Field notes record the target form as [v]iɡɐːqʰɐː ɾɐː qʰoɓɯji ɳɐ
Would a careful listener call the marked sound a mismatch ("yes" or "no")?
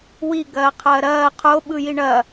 yes